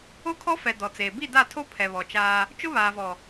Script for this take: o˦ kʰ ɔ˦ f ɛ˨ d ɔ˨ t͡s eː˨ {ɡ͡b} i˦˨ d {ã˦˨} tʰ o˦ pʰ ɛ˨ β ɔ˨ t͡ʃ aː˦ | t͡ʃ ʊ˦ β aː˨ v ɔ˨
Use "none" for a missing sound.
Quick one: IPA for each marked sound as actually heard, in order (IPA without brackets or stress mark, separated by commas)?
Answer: b, a˦˨